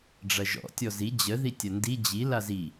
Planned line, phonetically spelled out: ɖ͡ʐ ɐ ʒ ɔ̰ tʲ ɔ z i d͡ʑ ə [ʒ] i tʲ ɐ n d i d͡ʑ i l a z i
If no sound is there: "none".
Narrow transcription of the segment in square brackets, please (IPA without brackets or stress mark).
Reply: ð